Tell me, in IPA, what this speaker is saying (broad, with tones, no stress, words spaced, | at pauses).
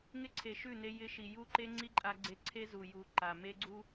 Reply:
ŋɪ˦ǀʰe˨ʃʉ˦˨ ne˧ jɪ˧ʃi˨ ju˦ǃe˦ ŋ͡ǀi˦ǃʼa˧ɡ͡ǀe˧ ǀʰe˦ zu˨ju˨ ǃa˨ me˦ɡ͡ǀu˦